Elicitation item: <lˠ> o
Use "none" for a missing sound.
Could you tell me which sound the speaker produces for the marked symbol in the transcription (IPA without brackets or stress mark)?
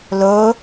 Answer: l